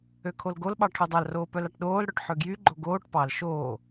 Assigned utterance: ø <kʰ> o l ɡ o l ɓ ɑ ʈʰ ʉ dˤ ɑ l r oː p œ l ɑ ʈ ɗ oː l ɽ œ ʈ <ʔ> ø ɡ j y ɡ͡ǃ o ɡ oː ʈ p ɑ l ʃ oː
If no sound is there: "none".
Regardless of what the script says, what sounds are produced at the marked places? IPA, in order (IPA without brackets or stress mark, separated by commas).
kʰ, ħ